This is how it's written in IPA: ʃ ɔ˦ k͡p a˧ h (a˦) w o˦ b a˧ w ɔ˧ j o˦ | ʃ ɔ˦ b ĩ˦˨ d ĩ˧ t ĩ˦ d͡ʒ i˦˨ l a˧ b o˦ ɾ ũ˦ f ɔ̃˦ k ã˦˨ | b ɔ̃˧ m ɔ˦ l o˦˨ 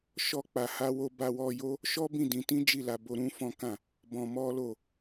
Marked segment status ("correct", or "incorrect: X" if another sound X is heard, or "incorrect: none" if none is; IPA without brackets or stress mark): correct